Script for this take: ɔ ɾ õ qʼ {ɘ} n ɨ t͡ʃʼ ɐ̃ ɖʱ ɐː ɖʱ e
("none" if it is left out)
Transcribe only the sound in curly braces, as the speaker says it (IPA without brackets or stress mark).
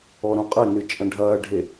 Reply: ɘ